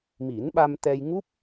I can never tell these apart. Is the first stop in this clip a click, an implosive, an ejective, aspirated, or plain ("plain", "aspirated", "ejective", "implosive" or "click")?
implosive